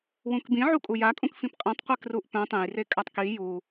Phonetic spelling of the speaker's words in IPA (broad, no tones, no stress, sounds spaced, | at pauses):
w ũ k b ĩ ʕ u kʼ u j a kʼ ũ k f ĩ p qʼ ĩ tˤ qʷ e k r u ʔ p œ̃ tˤ ẽ j r e kʼ a tˤ k i j u